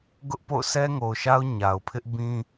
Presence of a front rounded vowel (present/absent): absent